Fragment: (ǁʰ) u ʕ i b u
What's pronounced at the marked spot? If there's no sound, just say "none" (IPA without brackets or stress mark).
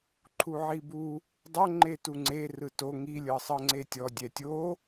ǃʰ